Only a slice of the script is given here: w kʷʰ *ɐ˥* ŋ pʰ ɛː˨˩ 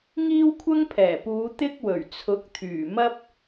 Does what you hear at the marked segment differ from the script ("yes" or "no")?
no